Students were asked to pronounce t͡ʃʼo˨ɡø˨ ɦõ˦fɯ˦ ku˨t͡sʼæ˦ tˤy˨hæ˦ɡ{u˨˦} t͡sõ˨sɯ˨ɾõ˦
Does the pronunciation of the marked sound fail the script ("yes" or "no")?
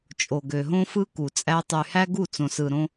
yes